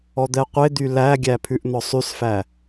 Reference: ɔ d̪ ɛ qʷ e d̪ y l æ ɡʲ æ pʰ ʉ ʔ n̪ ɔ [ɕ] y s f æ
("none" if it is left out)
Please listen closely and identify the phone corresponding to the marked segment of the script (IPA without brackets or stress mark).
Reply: sˤ